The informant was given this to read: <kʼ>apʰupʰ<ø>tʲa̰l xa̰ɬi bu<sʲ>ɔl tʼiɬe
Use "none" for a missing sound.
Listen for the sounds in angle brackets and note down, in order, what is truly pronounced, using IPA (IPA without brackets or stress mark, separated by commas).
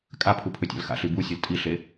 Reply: kʼ, ø, sʲ